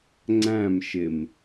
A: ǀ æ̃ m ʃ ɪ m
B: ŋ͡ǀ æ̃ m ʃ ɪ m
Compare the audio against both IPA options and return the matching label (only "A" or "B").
B